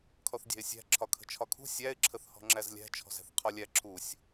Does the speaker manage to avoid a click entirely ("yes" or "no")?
no